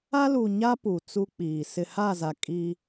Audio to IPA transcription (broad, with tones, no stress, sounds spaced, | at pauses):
a˦ l u˨ ɲ a˦ p u˨ t͡s u˦ k͡p iː˨ s ɪ˨ h a˦˨ z a˨ kʼ i˦